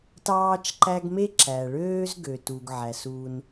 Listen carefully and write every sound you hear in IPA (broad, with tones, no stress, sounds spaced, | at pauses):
t ɑː˦ t͡ʃ ǃ æ˦ ɡ m e˥ ǁ æ˩ ɭ øː˥ z ɡ ø˩ t u˩ ɡ ʕ æ˩ s u˨ n